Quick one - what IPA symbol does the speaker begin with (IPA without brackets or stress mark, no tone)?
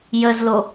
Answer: j